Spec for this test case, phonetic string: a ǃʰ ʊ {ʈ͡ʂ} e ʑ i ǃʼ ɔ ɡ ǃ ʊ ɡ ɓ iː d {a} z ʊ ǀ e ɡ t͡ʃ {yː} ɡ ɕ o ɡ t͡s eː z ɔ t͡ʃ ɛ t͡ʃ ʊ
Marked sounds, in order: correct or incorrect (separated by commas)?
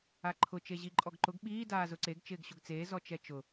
incorrect, incorrect, incorrect